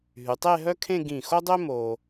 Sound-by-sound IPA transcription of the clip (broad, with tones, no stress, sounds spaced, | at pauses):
ɦ y˩˧ tˤ e˥˧ ɦ œ˥ kʰ ẽ˥˧ ɡ ĩ˧˩ x o˥ dˤ ø˥ m o˧